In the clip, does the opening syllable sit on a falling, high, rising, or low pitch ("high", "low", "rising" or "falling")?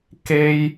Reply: high